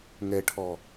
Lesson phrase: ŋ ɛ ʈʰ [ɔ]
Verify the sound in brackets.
correct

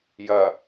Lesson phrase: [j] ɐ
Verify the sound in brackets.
correct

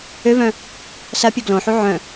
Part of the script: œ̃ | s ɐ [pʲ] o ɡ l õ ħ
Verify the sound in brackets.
correct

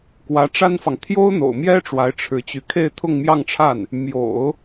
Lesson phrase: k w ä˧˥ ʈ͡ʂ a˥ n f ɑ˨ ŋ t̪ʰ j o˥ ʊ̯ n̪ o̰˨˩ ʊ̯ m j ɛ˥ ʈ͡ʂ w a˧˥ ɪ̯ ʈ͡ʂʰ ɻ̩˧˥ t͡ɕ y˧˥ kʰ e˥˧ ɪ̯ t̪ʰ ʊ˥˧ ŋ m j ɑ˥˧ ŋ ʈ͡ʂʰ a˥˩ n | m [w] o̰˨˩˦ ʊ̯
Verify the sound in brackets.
incorrect: j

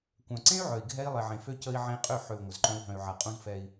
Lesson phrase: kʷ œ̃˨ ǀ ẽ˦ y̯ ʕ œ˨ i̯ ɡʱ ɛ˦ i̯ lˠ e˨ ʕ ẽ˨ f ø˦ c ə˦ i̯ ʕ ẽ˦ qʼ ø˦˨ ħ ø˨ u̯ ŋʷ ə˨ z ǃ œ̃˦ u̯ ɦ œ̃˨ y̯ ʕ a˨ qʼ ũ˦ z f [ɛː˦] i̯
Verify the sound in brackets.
incorrect: ɛ˦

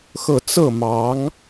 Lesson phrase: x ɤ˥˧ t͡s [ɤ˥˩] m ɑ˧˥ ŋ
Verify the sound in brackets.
correct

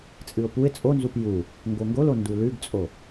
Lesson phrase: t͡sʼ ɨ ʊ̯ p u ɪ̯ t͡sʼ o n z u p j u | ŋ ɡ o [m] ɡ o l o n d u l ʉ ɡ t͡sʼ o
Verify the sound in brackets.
incorrect: ŋ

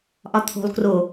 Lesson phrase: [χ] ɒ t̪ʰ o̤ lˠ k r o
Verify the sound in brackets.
incorrect: ʔ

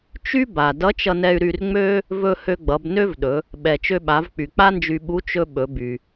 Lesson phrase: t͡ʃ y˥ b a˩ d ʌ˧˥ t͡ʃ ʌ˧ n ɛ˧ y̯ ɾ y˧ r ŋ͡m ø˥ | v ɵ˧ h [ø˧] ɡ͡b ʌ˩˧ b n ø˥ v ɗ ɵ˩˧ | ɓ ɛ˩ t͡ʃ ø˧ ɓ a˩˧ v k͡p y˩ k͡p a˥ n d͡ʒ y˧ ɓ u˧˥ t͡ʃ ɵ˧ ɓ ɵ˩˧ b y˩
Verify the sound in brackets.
correct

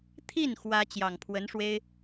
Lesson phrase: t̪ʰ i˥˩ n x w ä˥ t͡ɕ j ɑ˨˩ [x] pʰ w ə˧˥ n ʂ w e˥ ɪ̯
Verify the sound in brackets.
incorrect: ŋ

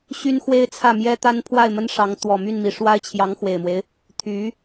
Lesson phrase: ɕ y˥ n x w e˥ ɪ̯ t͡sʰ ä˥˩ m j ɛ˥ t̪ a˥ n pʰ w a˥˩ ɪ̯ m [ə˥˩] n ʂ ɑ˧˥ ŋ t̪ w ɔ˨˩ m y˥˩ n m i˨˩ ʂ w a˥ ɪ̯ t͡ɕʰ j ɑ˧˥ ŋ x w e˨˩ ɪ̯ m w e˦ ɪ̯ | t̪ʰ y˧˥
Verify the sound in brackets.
incorrect: ə˥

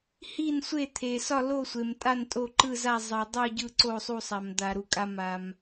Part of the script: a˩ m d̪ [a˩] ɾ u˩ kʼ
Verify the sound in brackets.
correct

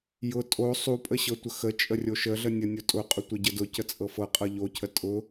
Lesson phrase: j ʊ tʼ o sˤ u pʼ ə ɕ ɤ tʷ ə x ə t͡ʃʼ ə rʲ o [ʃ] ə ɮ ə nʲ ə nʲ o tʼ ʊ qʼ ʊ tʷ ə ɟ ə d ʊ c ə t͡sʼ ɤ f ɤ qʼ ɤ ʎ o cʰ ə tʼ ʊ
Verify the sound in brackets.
correct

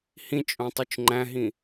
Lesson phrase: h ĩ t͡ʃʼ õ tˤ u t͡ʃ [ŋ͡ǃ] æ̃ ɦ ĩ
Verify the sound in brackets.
correct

